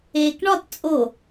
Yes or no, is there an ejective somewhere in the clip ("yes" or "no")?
yes